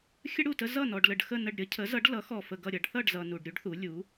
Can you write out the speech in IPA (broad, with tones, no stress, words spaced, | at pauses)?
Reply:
xʲə˥ɽu˥˩tə˥ zʌ˥˩nɔ˨ɖ lə˨ɖxə˥˩nə˥˩ɖɾʲʌ˥ cʰə˩˥zʌ˩˥ɖ lʌ˩˥ xɔ˨fə˨ ɡʌ˥˩ɾʲʌ˩˥ɖ θʌ˥˩ɖzʌ˨ nu˨ɖɾʲu˥ɖθu˩˥ lʲu˩˥